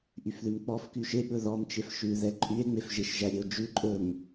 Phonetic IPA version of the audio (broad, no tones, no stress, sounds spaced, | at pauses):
ʔ y f ð ʉ m k͡p ɔ f k y ʃ e ɓ ɵ ð ɔ m t͡ʃ e f ʃ ʉ ð ɛ ǃʼ y e̯ ŋ͡m e f ʒ e ʃ ʒ æ ɾʲ e o̯ d͡ʒ ʉ ǃʼ ɵ m